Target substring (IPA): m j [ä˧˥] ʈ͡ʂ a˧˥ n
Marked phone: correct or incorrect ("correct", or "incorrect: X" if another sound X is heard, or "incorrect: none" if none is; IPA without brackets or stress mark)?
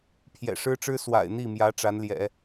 correct